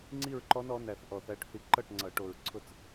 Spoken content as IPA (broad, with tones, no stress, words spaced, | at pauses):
ŋ͡ǀi˥˧ɹǃɔ˦˥nɔ˨˦næ˨˩θ ʔɔ˨˩θæ˨˦ʈθi˨˦ ǃʌ˥˩ʈŋ͡ǀʌ˨˩˦ʈo˨˩ɹ ǀʰʊ˥˩t͡s